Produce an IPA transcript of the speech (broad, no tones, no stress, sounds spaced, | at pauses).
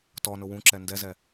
t ɔ n ʊ w ũ ǁ ɛ n d ɛ z ɛ